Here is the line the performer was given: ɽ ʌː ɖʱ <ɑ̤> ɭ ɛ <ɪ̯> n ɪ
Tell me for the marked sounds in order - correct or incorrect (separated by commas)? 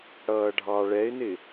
incorrect, correct